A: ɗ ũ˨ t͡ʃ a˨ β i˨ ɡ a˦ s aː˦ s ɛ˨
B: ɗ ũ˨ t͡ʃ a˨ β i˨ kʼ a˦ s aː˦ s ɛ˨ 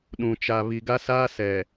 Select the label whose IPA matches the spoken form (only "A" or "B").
A